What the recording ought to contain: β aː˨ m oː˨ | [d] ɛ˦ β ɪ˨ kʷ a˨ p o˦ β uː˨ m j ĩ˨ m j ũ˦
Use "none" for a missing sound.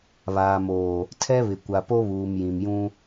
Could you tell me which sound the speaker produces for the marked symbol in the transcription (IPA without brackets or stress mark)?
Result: tʰ